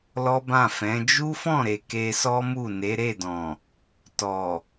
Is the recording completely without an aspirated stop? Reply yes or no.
yes